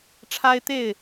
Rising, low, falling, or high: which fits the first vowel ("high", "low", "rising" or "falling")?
high